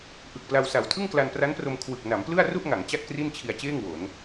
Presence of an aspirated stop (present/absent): present